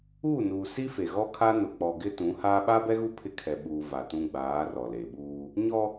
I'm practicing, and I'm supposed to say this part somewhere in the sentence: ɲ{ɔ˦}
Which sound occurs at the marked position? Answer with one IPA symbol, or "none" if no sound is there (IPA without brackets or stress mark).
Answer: ɔ˦